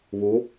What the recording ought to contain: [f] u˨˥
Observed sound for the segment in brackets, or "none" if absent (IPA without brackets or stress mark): β